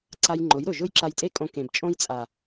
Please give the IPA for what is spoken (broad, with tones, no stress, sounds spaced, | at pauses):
ǀ a˧ j ŋ͡ǃ ʊ˨˦ j ɾ ʊ˨ ʒ ʊ˦ j ǁ a˧ j tʼ e˦ kʼ õ˧ k ẽ˨ b t͡ʃʼ õ˦ j t͡sʼ a˨